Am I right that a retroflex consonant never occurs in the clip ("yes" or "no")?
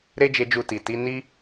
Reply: yes